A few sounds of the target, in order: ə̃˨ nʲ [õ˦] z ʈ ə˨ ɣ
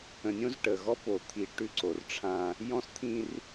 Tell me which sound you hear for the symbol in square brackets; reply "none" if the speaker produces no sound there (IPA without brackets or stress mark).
õ˦